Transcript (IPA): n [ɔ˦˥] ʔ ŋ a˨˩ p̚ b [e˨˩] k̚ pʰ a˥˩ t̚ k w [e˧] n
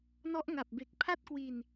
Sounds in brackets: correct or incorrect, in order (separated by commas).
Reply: correct, correct, incorrect